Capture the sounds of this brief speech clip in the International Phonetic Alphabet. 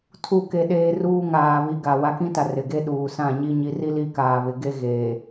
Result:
tʰ u˦˨ k e˦ ɗ eː˦ r uː˦ ŋ aː˨ β i˨ ɡ a˨ w a˦ k ĩ˦ t a˨ r ɪ˨ ɡ e˦ ɗ uː˨ s ã˦˨ ɲ i˦ ɲ i˨ r i˦ l i˦ k aː˨ β ɪ˨ ɡ e˦ ɣ eː˨

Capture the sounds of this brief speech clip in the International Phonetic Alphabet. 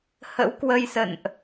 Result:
h ə̰˧˥ w k w ə˧ j s ə̰˧˨ n ʔ

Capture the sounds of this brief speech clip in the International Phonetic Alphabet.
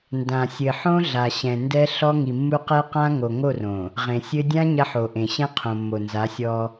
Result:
n d ã˨ sʲ ɘ˨ ħ õ˦ ɮ a˨ ɕ ɛ̃˨ n d ɛ˦ ɬ ɔ˦ ŋ i˨ mː u˦ q ɛ˦ q ã˦ ŋ o˨ ŋ o˦˨ r õ˨ | ʁ ẽ˨ sʲ ɘ˦ dʲ ã˦ ɲ ɐ˦ ħ o˨ ʔ ẽ˨ ɕ ɛ̃˦ qʰ õ˨ mː o˨ n z a˨˦ sʲ ɔ˦

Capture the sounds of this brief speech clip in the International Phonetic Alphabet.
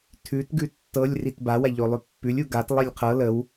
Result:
tʰ ʉ t ɡ ʉ tː ɤ lʲ r i t b a w a ʎ o lˠ ʉ pː ʉ lʲ u ɡ a t lˠ i lʲ qʰ ɤ l ə w

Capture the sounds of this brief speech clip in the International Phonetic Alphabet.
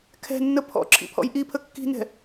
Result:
kʰ ɛ̤ nː ə pʰ ɔ̰ ǁʰ ḭ pʰ ɔ̰ j ʔ i pʰ ə kː i̤ n ɛ̤

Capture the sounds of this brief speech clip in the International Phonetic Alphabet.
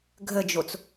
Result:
ɡʱ ə d͡ʒ o t͡s

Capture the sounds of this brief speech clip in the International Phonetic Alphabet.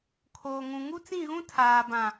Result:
kʰ oː˨ ŋ ũ˨ ŋ u˦ t͡s ĩ˦˨ ɣ ũ˦ tʰ aː˨ b ã˨

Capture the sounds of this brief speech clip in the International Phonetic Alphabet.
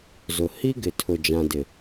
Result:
z ʊ˨ h i˦ ɡ ɪ˨ tʰ ʊ˨ d͡ʒ ã˨ d ɪ˨

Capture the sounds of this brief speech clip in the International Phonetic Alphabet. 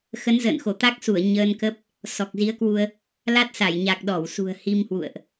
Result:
x ə˨˦ n z ə̰ː˧˨ n x o˧˩ t̪ a˦˥ k̚ s u˧˩ ə̯ ɲ əː˧ n k ə˦˥ p̚ | s ɔ˨˩ k̚ z i˨˦ ə̯ k w u˧ ə̯ | l a˦˥ t̚ s a˧˩ j ɲ a˨˩ k̚ ɗ ɔ˧˩ w s ṳ˨˩ ə̯ h i˧ m h w ṵ˧˨ ə̯ ʔ

